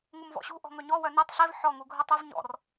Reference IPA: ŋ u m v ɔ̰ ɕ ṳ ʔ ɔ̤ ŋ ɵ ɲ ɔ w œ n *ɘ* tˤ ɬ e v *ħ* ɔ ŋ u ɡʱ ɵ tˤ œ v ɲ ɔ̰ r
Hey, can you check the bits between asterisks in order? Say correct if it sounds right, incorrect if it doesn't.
incorrect: e, correct

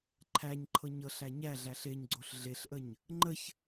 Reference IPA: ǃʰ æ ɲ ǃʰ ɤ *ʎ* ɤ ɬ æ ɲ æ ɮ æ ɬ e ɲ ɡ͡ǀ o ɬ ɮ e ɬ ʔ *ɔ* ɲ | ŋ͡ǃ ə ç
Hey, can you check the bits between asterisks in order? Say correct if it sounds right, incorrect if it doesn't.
incorrect: ɲ, incorrect: ə

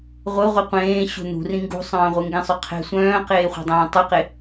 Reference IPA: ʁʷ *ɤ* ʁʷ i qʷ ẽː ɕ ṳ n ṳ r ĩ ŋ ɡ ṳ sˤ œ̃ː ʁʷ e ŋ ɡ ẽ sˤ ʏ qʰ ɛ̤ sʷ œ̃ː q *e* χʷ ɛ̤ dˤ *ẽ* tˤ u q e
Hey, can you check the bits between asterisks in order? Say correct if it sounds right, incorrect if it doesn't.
correct, incorrect: eː, incorrect: ẽː

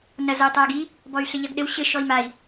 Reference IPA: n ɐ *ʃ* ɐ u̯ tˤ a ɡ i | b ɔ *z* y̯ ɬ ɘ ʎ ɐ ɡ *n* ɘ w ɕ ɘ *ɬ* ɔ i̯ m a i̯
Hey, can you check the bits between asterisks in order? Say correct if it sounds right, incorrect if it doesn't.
incorrect: z, incorrect: none, incorrect: ɗ, incorrect: ʃ

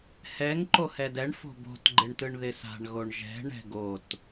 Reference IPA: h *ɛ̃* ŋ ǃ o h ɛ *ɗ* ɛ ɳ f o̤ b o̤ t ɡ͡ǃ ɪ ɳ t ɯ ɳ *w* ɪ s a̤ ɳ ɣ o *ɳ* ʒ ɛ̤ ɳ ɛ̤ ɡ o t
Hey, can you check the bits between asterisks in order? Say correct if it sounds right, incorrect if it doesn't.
incorrect: ɛ, incorrect: d, incorrect: ð, correct

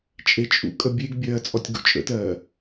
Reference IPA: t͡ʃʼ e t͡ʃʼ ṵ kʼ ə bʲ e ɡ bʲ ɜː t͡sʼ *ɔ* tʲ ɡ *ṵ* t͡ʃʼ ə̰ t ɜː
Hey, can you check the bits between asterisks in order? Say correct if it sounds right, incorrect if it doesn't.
correct, correct

